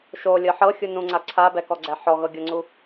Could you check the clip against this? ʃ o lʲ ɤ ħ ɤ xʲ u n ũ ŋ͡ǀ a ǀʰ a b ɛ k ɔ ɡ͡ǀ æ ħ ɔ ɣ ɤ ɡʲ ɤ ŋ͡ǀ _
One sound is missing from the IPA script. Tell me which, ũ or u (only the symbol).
u